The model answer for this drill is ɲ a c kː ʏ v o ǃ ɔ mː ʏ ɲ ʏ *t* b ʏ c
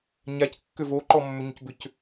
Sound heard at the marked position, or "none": c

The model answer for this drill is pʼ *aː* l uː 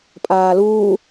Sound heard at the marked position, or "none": aː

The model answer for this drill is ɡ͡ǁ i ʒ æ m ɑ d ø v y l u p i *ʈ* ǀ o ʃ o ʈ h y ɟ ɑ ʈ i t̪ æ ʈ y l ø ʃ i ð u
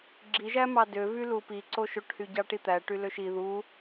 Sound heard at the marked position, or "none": none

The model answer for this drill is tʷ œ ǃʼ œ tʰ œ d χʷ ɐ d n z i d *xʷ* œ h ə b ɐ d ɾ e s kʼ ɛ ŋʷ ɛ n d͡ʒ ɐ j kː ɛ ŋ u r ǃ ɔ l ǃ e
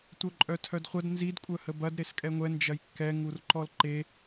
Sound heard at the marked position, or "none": kʷʼ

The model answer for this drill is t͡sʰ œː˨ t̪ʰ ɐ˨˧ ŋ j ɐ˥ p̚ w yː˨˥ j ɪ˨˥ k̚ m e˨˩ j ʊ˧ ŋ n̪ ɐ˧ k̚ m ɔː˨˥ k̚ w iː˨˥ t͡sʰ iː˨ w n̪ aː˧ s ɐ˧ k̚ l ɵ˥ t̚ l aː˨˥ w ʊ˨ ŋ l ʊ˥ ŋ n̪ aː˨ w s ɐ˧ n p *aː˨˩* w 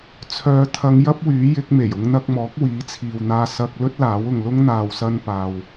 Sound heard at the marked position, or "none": aː˨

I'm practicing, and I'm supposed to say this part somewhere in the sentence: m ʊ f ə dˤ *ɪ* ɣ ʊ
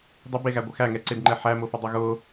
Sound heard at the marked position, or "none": ɪ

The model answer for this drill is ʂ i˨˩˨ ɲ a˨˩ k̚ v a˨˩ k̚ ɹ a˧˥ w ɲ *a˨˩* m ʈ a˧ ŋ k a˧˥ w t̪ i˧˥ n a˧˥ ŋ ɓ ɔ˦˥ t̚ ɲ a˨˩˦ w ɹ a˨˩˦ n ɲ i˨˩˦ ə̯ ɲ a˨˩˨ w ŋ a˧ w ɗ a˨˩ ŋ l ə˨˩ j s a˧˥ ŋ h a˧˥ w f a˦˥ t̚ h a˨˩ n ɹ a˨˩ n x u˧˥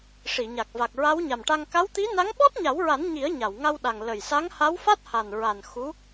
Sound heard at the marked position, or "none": a˨˩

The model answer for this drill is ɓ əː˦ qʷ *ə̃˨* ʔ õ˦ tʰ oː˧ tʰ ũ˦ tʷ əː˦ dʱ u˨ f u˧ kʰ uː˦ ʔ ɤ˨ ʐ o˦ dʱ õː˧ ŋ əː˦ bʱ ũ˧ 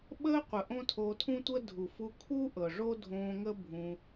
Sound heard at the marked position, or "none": ə˨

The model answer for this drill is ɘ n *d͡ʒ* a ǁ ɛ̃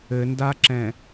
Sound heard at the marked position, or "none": d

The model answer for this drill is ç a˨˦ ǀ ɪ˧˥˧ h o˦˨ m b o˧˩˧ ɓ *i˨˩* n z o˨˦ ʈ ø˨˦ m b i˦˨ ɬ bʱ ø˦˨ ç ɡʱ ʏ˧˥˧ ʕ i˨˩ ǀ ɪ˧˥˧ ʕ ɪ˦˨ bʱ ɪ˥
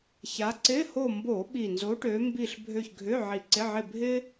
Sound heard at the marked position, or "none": i˨˩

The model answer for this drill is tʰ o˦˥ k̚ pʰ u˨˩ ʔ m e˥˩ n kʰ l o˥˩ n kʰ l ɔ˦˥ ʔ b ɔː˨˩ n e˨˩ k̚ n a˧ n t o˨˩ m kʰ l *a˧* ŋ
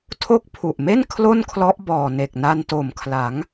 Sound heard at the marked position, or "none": a˩˦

